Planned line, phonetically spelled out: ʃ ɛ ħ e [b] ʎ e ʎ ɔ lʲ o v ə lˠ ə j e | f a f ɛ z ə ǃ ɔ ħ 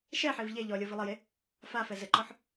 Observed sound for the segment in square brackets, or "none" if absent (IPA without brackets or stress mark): v